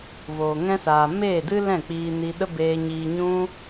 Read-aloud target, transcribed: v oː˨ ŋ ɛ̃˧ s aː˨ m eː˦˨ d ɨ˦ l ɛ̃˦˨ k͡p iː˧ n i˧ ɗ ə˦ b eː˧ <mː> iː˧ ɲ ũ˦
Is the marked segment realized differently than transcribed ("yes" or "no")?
yes